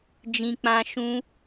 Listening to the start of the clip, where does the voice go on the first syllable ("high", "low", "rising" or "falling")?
high